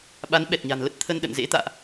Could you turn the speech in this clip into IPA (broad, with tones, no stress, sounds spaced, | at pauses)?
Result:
ɓ a˨˦ n ɓ ɛ˨˩ t̚ ɲ a̤˨˩ n l ə˦˥ t̚ t̪ʰ ə˧ n ɗ ə̰˧˨ n z ḛ˧˥ t̪ a̰ː˧˨ ʔ